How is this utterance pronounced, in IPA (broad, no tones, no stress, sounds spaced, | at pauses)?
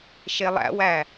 ʃ e lˠ æ̰ w æ